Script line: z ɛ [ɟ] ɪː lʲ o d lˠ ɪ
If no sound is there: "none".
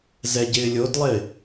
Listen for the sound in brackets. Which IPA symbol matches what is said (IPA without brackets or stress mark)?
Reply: ɟ